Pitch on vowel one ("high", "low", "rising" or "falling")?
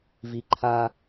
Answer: low